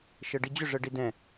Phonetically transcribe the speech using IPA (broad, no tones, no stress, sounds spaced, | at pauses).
ʃ ɤ ɖ i d͡ʑ ʏ ʐ ɤ ɖ i d ɛ̃